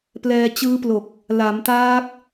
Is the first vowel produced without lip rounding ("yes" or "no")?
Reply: yes